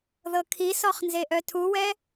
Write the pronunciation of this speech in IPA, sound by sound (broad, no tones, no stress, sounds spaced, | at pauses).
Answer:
ð ɤ kʰ i s ɔ χ n z e ʔ œ tʰ u w ɛ